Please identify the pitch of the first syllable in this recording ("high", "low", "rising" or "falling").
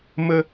high